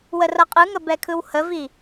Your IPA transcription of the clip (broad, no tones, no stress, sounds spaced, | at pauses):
w ə r ʌ qʼ ɯ ŋ ə b ɛ kʰ ɯ w h ə v i